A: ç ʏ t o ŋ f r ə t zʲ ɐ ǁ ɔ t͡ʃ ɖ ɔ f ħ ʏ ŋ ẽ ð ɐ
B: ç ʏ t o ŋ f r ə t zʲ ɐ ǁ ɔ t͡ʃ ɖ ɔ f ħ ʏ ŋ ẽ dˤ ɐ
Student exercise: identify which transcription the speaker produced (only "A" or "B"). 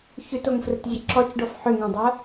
B